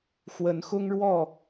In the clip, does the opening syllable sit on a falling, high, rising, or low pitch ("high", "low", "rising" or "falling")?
rising